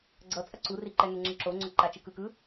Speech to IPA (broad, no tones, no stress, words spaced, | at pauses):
ɡ͡ǀʌ t͡sʼʌǀuri ǃɛŋɛŋ͡ǁɯ ǁoŋ͡ǀo ǃat͡ʃɯkɯkɯ